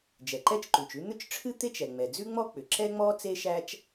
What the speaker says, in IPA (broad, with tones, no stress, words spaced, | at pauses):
d͡ʒɛ˩ǃɛ˥t͡ʃǃʉ˩t͡ʃʉ˥ n̪ʏ˥t͡ʃʈ͡ʂʰɨ˥t̪e˥t͡ʃ ɛ˩ŋ͡mɛ˩d͡zʉ˥ŋ͡mɔ˥ k͡pʏ˩ ǁɛ˥ŋ͡mɔ˥ t͡se˥ʃæ˥t͡ʃ